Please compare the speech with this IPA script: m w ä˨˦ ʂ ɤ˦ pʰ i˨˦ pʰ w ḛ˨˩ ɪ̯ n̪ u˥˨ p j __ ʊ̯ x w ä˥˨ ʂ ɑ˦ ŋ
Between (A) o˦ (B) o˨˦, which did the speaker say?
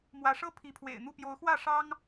B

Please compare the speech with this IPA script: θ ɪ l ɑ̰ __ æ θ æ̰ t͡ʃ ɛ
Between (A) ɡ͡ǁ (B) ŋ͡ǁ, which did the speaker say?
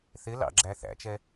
A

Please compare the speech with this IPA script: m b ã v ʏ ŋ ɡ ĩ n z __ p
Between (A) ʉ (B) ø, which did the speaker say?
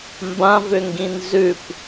A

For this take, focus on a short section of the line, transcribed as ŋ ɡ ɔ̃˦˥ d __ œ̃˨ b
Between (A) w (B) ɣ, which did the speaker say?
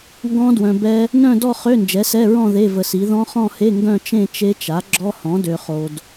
A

